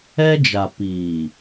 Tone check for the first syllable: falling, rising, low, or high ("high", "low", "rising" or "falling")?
high